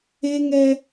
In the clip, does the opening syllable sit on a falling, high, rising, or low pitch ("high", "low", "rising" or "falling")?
high